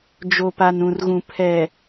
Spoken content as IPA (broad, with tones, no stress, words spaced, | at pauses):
d͡ʒo˨pa˨nũ˨rɣũ˨ pʰɛ˨